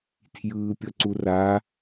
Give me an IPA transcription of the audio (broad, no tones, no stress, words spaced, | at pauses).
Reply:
tʰjɯːpʲʌǀura